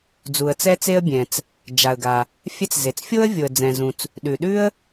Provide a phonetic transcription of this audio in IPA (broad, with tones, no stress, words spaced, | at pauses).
d͡zu˩ə̯t͡sɛ˥t͡se˥ə̯ bʲɛ̃˩t͡s | d͡ʒa˩ə̯ɡa˩ | fʲɛ˥t͡s ze˩t͡sfʲo˥ə̯ vʲo˩ə̯d͡zɛ̃˩zũ˩t͡s | ɗʉ˩ɗʉ˥ə̯